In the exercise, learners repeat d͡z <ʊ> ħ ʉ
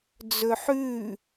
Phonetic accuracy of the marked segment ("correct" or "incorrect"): incorrect